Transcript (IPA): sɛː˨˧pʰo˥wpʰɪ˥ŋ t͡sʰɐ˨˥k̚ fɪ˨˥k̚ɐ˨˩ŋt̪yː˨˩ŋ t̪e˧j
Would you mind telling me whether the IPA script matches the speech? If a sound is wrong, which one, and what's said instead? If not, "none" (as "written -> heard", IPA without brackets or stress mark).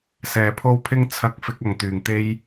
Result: none